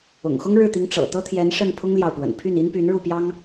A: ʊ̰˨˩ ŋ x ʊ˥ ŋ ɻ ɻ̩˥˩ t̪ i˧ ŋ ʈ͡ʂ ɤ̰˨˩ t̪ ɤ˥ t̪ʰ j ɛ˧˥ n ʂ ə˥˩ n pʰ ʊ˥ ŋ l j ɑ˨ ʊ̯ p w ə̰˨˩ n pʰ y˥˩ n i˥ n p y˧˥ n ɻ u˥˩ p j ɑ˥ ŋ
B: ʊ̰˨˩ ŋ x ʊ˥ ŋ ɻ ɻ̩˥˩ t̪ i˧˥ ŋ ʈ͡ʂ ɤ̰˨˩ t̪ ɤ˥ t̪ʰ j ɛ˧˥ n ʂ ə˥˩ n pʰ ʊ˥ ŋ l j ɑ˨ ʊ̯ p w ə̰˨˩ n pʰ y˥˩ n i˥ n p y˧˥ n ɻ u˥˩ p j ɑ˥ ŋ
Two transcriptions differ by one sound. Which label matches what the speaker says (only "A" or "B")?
B